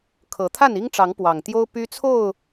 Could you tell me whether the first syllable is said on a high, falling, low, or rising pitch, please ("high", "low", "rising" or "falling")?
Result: rising